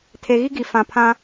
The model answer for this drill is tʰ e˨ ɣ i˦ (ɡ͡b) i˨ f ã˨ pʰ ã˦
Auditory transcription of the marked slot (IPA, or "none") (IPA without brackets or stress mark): ɡ